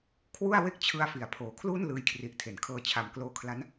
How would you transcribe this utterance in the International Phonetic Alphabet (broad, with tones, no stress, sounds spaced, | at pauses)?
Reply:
kʰ w u˥˩ a̯ w e˥˩ k̚ t͡ɕʰ ɯ˧ a̯ f i˩˦ a̯ pʰ oː˩˦ kʰ l uː˥˩ n l ɯː˧ j kʰ r i˨˩ ʔ tʰ e˩˦ n kʰ ɤː˧ t͡ɕʰ a˨˩ m k l oː˧ kʰ l a˦˥ n